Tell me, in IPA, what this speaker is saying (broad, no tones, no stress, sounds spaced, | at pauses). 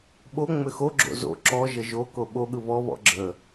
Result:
ɓ o ŋ͡m ʏ x o ɡ͡ǁ o̰ z o̰ ǁ ɔ ʒ ə ʒ o k o ɓ o ɠ ɯ β ɔ β ɔ̰ ɡ͡ǁ ə